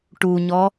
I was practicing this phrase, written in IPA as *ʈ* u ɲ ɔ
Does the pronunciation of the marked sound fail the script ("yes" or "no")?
no